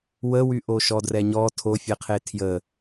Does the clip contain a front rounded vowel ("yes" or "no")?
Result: yes